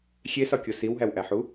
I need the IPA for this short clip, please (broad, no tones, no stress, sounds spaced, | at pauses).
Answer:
xʲ e s ɒ kʲ o s i w ɦ æ w ʔ æ ħ u